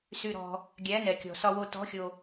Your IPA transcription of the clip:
s y˧ ɾ ɔ̤˧ | ɡʲ æ˧˥ n ɛ˧ kʲ ɔ̤˧ s ɒ˧ w o˧ t ɔ̤˧˥ xʲ o˧

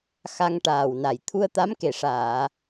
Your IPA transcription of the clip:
x a˧ ŋ ʈ aː˨˩ w n a˨˩ j t̪ʰ u˧ ə̯ t̪ a˧˥ m k e˨˩ ʂ aː˨˩˨

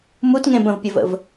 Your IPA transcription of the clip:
m u t ŋ ẽ b ə̃ v pʲ ə v ə̰ v

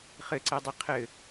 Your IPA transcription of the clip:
χ ɘ ǀ ɛ dˤ i qʰ ɘ

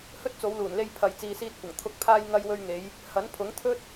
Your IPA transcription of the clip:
h ɵ˥ t̚ t͡s o˨˧ w l uː˨˩ n l e˧ j pʰ ɐ˨ j t͡s iː˨ s iː˧ t̚ kʷ ɐ˨˩ ŋ t̪ʰ ʊ˨˥ k̚ pʰ aː˧ j ŋ ɐ˧ j w ɵ˧ ɥ ŋ e˨˧ j | h ɐ˨˥ n pʰ ʊ˨˥ ŋ t̪ʰ ɵ˥ t̚

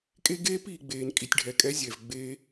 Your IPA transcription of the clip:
kʼ e˦ ɡ eː˦ p iː˨ ɡ͡b eː˨ n kʼ i˨ tʲ ɖʱ ɛ˨ kʼ ɛ˧ zʲ ɛ˨ v ɡ͡b eː˧

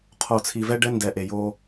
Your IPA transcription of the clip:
qʰ o˨ t͡sʰ i˨ v ɛ˦ ɖ ɛ˦ n d ɛ˨ ʔ e˨ j o˦

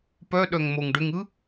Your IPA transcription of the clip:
p œ ɗ œ ŋ m o ŋ ɖ ʏ ŋ ɯ

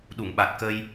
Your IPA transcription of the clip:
ɗ u˨˩˨ ŋ ɓ a˨˩ t̚ k ə˧ j

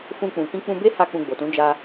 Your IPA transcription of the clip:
f ũ˧ k͡p ũ˨ k ĩ˧ k͡p ũ˧ b e˦ h a˧ k͡p ũ˧ ɡ͡b o˨ t ũ˨˦ d͡ʒ a˧

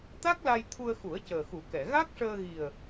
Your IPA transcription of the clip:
t̪ a˦˥ k̚ l a˧ j t̪ʰ u˧ ə̯ x u˨˩˦ ə̯ c əː˨˩ x u˨˩˦ k ɛ˨˩˨ ɣ a˦˥ k̚ ʂ əː˧ ɣ i˨˩ ə̯

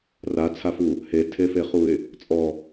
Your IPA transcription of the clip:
r a t͡sʰ a f u | h e tʰ e f e χ u ɪ̯ | t͡sʼ ɔ

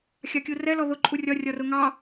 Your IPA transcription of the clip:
xʲ ɑ kʲ u r ɛ l ɔ ð ʊ ǃʼ u rʲ ɒ rʲ ɒ r ʊ ŋ ɑ

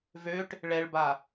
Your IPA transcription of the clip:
v ø ʈ | ɭ ɛ ɭ b a

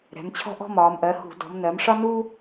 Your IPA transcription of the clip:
ɾ ɛ̤˩˧ m t͡ɕʰ ɔ̤˥ ʔ ɔ̤˥ m ɒː˩˧ m ʔ ɜ˩˧ h ṳ˧˩˧ d ɔ̤˩˧ m n ɜ˩˧ m ʂ ɒ˥ n uː˥

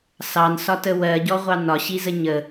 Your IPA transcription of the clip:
s ɑ n s ɒ t ə w ɜ ɟ ɔ ʁʷ ɑ n ɒ ɕ i z ə ɲ ə

